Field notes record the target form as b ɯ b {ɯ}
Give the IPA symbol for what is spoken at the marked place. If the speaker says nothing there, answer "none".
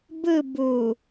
u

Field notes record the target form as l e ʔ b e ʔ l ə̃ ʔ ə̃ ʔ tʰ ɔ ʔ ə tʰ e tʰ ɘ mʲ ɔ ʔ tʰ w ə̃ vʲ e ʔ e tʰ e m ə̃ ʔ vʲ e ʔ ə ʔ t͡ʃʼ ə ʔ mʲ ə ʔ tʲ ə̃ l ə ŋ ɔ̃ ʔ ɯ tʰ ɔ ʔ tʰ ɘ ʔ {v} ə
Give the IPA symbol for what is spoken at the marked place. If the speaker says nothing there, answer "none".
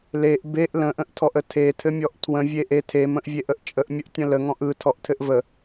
v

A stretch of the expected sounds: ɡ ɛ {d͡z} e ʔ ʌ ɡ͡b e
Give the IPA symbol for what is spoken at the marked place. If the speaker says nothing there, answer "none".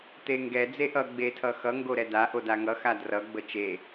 d͡z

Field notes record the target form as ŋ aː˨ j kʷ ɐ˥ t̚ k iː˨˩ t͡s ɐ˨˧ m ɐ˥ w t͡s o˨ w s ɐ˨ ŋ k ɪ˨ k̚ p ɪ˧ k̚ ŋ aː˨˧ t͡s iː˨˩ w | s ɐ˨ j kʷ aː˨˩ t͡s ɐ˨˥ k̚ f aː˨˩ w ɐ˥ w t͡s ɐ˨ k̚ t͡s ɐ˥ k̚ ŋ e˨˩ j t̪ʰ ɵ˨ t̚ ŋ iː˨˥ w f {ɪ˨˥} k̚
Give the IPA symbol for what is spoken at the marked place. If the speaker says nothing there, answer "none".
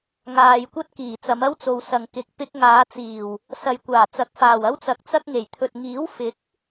ɪ˨˥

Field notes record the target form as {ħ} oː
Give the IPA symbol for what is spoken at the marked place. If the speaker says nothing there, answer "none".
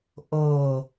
ʔ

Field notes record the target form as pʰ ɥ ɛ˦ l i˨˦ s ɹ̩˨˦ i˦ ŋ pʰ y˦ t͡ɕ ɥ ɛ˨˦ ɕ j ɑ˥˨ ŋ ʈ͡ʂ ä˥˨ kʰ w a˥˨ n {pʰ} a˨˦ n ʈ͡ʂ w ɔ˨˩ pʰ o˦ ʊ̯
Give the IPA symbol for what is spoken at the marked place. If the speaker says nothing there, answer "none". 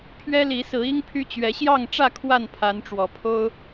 pʰ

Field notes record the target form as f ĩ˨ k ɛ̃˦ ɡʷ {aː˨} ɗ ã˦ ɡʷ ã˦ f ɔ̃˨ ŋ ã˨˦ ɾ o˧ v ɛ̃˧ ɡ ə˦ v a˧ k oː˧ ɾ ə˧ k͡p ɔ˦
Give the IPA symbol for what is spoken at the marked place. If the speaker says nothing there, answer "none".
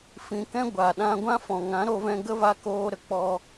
a˨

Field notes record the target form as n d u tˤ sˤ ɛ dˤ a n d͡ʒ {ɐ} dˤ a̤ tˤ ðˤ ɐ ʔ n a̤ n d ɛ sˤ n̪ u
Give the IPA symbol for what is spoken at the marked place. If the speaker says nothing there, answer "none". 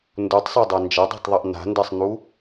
ɐ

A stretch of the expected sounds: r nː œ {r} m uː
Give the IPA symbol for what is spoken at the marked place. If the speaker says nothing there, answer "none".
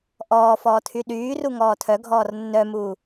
none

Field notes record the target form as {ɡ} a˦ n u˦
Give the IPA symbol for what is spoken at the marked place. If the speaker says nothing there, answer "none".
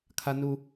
kʰ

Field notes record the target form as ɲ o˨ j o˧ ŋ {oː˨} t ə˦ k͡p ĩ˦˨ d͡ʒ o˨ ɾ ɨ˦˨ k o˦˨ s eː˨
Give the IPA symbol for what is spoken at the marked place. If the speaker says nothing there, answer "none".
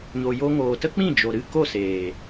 oː˨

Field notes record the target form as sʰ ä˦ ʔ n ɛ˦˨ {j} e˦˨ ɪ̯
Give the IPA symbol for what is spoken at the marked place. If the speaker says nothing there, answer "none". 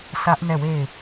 w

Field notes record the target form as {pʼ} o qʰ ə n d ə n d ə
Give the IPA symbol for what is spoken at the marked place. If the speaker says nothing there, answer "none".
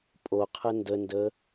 pʼ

